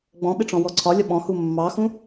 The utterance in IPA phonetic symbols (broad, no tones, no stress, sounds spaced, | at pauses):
ɡ͡b ɔ̃ ɓ ɪ ʈ͡ʂ ɔ̃ w ɔ ǀʰ ɒ lʲ ɒ ɓ ɔ̃ h u mː ɑ x ũ